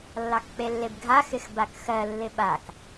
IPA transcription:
lː ɑ k k͡p e lː e b ɡʱ a x ɪ x b a k x ɜ lː ɪ ɓ a k

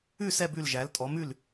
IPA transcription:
ʉ˥˩ s ɛ˥˩ b ʉ˥˩ l ʒ æ˩˥ l tʼ ɔ˩˥ m ʉ˥˩ l

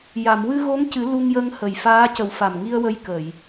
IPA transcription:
j a˨˩˨ m w ɨ˧ ɣ o˧˥ ŋ c ɨ˨˩˦ l u˧ ŋ j ə˧ ŋ h ə˨˩ j f aː˧˥ c ə˨˩˦ w f a˨˩ m ŋ i˧ ə̯ w ə˧ j k ə˨˩˨ j

